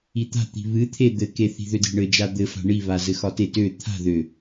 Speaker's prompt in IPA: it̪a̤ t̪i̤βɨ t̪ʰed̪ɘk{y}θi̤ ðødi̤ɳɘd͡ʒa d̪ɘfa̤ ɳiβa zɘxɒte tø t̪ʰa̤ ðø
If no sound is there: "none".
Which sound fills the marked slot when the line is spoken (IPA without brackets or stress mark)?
e